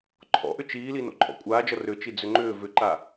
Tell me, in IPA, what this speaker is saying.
ǃʰɔ̰ʔʏ t͡ʃiːli no̰ǃʼɔ̰kʷʼaːd͡ʒʌ rʏt͡ʃi d͡zʏŋ͡ǃʏː vʏǃa

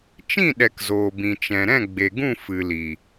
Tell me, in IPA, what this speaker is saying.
t͡ʃĩ˦˨ɗɛ˨k zoː˨bĩ˨ t͡ʃɛ̃˨ ɾɛ̃˦˨ɡ͡be˨ɡũ˦˨ fɨ˨li˨

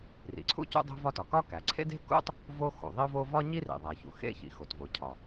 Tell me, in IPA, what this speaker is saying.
rḭ˩ǀʰṵ˥ cṵ˥dˤo̤˥vɒ˥tɒ˩ kɒ˥kæ˩ ǀʰḛ˥de̤˥kṵ˥tˤ | vo˥ xṵ˩ ðˤi˥ʊ̯vo˥ vɒ˥ɲi˥rḭ˩ ðˤæ˩çṵ˩ xḛ˥ çḭ˩xo˩tvo˩ cʰɒ˩

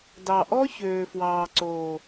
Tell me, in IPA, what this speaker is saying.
dɑ˨ʔɔ˦ çøː˨fwɑː˨ǀoː˨

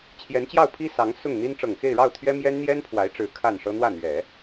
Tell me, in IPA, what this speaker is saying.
t͡ɕʰjɛ˧˥nt͡ɕjɑ˥˩ʊ̯pʰi˥ sɑ˧˥ŋsʊ˥˩ŋn̪i˥n ʈ͡ʂɤ˨˩ŋxe˥˧ɪ̯ɻɑ˥˩ʊ̯t̪ʰɥɛ˥ mjɛ˥n n̪jɛ˥npʰwa˧˥ɪ̯ʈ͡ʂɻ̩˧˥ kʰa˥˩nʂɤ˥ n̪wä˥˩n̪ɥɛ˨˩˦

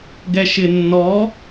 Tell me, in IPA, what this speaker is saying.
ɡɛʃɪnːɔ

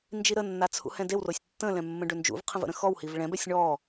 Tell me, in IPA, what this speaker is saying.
nd͡ʒiɾənːa t͡sʰṵhɛ̃dewrosʲ tːə̃lɛ̃ mːə̃ɖønd͡ʒṵvqʰə̃v ə̰ɾə̃xɔwhiv ɭɛ̃bɛsʲ ɳɔ

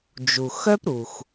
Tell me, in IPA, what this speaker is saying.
d͡ʒu˩xœ˥pɾu˩x

